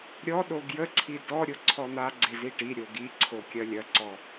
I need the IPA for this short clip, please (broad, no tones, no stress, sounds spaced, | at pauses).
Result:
ɾʲ ɔ ɗ o ɡ j ə ǀʰ i d ɔ ɾʲ o ǀʰ ɔ n̪ a ɡ͡ǀ e z i ʈ i ɾʲ o ɡ i ǀʰ o kʲ ɐ lʲ ɐ ǀ ɔ